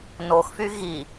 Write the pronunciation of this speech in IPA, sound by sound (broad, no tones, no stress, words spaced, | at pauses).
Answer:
noxfy ɣi